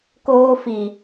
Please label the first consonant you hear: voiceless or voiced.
voiceless